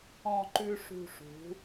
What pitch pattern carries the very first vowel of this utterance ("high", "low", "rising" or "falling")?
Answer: falling